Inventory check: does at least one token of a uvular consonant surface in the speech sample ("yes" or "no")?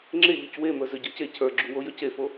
no